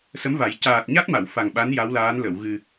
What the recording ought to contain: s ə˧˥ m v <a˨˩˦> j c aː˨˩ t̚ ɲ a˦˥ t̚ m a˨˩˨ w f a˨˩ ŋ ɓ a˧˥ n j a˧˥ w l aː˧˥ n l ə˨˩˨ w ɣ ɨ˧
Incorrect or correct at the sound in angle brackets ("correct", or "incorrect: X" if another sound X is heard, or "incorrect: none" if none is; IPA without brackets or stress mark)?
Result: correct